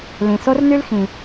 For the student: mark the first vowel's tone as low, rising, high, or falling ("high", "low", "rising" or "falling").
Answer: low